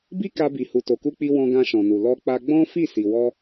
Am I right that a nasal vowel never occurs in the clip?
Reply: no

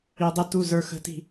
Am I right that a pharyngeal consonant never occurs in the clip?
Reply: yes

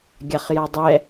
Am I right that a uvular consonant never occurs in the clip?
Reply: no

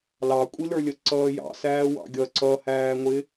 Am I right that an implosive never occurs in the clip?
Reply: yes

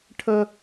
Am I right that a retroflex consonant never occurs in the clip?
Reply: no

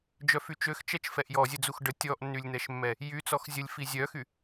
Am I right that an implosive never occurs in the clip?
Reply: yes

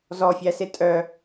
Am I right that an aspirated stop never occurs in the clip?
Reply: yes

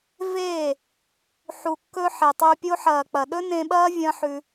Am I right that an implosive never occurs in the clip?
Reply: no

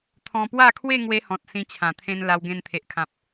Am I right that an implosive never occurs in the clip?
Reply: yes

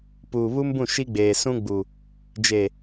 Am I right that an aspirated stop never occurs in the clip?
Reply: yes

